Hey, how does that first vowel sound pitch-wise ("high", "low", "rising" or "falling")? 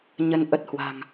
rising